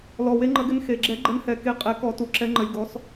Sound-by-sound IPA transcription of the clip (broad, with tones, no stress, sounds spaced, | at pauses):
l ɔ˨˩ w e˨˦ ŋ͡ǃ ə˨˩˦ ɡ ɪ˨˦ n x e˨˩ ɡ͡ǁ ɛ˨˩˦ ɡ͡ǃ ə˨˦ n h ɛ˨˩ k e˨˦ qʼ ɛ˨˩˦ k ɔ˨˩˦ t u˨˩ ǁ ɛ˨˦ ŋ͡ǃ ə˨˦ lʲ ɡ ɔ˨˦ s